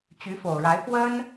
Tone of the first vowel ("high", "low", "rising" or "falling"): rising